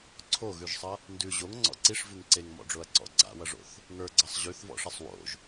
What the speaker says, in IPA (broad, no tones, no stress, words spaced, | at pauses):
ǀʰoɣʉʒsˤʌ | ndʉ ʑoŋŋ͡ǀɔ̰ ǀiʂvʉŋ ǀeŋmɔ̰ɖ͡ʐoɐ̯ǀɔ̰ ɡ͡ǀa̰wʌʐo̰θ | ŋə˞ɡ͡ǀʌsˤ ʑʉθvɔ̰ʂʌsˤ wo̰ʒ